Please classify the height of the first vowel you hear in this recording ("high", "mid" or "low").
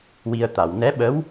high